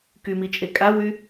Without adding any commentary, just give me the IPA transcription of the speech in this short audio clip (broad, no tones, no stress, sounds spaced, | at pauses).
k y m i t͡ʃʼ e kʼ a w y